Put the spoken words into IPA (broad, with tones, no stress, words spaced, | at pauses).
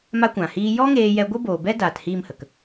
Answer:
ma˦kʷã˨hiː˦ jɔ˦ ŋeː˧ jɛ˧ ɡʷə˦boː˨bɛ˦ daː˨thiː˦˨mhə˨k